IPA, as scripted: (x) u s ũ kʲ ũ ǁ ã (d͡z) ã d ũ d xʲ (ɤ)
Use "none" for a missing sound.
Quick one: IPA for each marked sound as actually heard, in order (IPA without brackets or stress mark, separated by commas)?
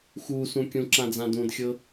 x, d͡z, ɤ